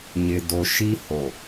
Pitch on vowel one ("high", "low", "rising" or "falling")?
low